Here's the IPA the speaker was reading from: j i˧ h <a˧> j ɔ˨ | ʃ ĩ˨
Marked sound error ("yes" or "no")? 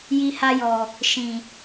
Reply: no